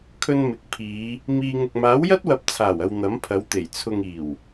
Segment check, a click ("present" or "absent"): absent